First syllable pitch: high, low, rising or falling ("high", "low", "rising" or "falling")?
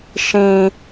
low